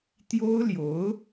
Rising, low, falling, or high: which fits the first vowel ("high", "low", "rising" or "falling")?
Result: high